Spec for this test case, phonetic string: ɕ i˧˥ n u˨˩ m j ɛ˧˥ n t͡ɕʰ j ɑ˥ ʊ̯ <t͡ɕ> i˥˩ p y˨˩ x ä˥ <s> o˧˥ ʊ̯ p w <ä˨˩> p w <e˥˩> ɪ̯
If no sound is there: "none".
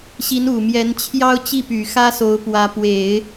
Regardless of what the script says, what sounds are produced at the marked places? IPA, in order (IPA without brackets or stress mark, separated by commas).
t͡ɕ, s, ä˧˥, e˨˩˦